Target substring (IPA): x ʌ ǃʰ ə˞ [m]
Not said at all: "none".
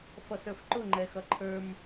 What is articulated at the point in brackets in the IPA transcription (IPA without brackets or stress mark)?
m